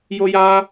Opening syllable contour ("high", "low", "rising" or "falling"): high